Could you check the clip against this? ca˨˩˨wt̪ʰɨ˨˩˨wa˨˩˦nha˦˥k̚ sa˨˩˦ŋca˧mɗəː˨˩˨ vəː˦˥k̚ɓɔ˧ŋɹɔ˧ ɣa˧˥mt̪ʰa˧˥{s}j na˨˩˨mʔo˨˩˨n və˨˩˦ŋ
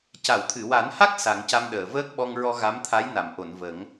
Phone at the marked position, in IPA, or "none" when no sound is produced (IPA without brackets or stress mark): none